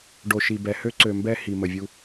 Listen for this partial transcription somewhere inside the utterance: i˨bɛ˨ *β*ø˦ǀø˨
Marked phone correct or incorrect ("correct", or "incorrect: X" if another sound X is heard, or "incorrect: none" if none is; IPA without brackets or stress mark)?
incorrect: h